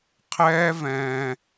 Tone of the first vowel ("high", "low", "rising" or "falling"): high